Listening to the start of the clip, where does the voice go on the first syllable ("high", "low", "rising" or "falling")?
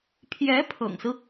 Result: rising